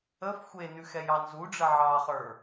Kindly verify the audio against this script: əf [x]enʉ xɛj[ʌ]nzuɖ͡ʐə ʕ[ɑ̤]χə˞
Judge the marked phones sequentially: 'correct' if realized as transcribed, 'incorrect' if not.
incorrect, incorrect, incorrect

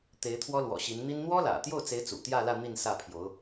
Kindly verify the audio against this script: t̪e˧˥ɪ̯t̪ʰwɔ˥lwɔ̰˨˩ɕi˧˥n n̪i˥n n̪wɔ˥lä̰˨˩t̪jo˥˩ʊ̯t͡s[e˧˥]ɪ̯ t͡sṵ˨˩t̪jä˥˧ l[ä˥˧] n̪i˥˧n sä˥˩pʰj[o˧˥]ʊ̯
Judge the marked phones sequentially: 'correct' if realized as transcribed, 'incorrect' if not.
correct, correct, correct

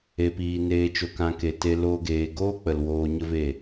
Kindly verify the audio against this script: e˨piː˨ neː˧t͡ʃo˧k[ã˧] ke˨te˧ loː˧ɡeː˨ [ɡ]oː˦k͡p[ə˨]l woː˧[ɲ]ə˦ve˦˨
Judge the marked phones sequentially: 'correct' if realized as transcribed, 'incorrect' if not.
correct, correct, correct, correct

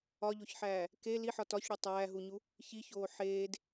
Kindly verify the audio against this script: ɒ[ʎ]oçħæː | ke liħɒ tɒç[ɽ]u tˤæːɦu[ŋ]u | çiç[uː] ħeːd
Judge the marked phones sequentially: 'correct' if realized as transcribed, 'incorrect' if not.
correct, correct, incorrect, incorrect

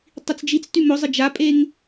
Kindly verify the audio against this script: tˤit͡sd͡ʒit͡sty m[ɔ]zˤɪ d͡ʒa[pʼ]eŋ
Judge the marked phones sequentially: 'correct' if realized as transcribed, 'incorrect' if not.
incorrect, correct

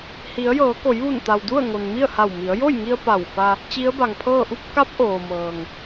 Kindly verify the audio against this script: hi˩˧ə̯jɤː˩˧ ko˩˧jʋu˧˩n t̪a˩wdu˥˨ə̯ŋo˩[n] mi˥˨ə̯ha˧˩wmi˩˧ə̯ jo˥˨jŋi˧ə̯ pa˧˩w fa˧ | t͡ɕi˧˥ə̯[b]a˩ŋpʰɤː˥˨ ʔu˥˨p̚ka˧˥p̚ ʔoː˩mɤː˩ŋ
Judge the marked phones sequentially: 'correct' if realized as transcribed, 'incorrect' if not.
correct, correct

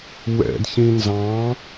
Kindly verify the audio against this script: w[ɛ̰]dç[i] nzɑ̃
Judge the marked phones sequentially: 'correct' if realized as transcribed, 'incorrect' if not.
correct, incorrect

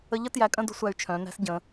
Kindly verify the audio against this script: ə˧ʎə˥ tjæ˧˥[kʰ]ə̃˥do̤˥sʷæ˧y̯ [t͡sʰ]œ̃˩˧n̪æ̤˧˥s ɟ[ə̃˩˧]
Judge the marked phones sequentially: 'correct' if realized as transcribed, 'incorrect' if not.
incorrect, incorrect, correct

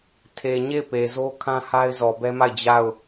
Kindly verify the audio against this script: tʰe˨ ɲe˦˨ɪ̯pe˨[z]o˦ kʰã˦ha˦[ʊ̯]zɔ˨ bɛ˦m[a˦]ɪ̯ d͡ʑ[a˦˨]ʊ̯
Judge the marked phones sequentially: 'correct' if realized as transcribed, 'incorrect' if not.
correct, incorrect, incorrect, correct

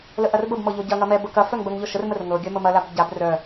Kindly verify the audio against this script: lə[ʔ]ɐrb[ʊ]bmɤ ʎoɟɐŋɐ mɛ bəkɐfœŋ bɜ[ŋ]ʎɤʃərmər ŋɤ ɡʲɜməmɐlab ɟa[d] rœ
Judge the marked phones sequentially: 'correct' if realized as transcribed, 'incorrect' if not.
correct, incorrect, correct, incorrect

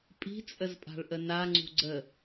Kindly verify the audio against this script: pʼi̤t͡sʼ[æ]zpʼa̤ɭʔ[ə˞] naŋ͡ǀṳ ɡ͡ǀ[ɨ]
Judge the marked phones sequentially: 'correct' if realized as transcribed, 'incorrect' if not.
incorrect, incorrect, incorrect

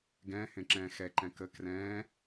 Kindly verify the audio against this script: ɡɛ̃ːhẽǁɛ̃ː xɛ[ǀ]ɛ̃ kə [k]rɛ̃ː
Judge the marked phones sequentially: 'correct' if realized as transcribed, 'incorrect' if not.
incorrect, correct

